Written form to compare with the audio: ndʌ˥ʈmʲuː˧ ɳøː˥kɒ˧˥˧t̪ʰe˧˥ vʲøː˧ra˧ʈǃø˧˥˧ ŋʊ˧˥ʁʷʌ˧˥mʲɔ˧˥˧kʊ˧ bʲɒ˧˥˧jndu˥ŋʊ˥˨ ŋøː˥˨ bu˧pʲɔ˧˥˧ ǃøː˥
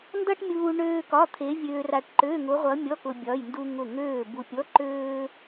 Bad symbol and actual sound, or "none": none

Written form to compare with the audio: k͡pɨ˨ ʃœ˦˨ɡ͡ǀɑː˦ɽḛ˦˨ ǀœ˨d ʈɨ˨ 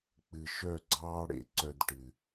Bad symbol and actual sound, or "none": none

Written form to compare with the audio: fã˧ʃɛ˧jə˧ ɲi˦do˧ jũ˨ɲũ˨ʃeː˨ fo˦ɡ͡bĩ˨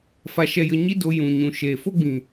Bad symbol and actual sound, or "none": ã˧ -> a˧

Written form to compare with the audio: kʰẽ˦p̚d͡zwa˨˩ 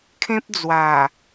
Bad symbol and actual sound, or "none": none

